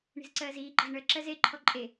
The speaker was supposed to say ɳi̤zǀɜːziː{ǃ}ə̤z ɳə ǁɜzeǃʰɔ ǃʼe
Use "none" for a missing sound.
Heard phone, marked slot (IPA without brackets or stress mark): ǃ